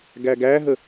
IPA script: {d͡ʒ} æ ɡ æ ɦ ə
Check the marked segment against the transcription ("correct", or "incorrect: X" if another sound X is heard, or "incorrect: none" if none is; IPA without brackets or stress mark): incorrect: ɡ